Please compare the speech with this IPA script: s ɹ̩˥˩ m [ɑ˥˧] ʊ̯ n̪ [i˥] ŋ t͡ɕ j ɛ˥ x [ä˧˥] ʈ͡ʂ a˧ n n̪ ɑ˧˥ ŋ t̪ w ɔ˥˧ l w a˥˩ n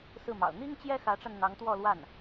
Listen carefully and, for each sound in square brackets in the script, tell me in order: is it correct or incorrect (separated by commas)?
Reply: incorrect, correct, correct